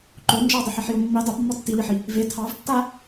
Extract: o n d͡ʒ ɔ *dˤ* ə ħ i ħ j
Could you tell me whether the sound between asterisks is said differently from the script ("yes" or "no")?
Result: no